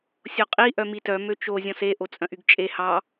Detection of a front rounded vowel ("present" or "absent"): present